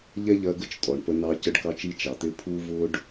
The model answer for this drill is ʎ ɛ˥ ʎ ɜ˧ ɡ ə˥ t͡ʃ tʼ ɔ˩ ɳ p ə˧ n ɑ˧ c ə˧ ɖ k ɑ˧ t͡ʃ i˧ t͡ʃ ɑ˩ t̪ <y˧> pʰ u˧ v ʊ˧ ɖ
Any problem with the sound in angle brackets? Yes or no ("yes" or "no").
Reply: yes